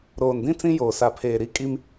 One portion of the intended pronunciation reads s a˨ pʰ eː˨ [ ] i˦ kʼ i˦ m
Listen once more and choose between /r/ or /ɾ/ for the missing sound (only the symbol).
ɾ